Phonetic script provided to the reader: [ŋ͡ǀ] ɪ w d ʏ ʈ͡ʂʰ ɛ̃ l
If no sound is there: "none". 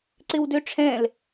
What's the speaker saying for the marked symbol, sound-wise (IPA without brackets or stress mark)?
ǀ